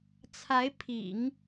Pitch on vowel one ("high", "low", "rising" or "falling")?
rising